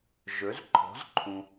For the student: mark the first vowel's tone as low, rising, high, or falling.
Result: rising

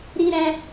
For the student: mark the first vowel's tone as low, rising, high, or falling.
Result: high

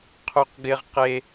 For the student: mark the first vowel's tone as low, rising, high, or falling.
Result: high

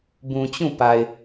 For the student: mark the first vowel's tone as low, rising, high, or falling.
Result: low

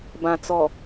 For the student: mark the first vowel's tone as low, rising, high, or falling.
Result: low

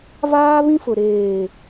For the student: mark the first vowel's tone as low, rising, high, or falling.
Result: high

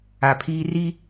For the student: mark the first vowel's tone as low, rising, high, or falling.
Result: low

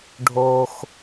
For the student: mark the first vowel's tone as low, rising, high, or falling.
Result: low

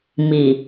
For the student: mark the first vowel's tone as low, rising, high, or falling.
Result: low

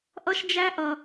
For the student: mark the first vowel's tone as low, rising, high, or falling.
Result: high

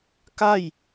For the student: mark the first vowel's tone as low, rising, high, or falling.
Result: falling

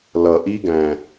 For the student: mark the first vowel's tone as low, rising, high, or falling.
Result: low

